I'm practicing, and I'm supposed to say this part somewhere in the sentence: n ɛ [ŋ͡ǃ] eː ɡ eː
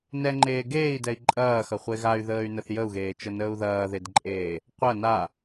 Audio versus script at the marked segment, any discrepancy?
no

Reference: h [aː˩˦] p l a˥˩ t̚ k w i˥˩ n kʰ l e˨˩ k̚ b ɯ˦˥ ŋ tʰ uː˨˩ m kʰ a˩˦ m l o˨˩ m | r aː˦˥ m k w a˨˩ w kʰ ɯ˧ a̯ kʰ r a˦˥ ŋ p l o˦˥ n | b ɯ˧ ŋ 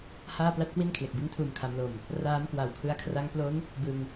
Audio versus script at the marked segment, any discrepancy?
yes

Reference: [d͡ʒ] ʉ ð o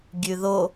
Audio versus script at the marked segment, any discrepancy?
yes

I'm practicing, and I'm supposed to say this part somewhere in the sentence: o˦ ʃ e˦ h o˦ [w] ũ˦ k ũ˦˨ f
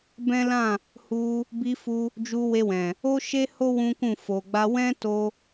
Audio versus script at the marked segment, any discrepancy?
no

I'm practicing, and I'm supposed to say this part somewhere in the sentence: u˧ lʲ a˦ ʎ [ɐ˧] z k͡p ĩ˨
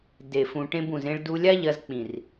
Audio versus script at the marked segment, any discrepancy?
no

